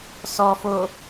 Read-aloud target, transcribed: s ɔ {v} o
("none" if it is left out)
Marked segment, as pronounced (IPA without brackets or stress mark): f